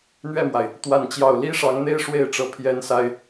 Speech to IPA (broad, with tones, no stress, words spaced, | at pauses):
n̪ɥɛ˥˩mwa˩ɪ̯ | t̪wa˥˧nt͡ɕjɑ˥˩ʊ̯ li˥ʂɑ˧˥ŋn̪e˥ɪ̯ ʂwe˥˩ɪ̯ʈ͡ʂɤ˧˥ pʰjɛ˥nsa˥ɪ̯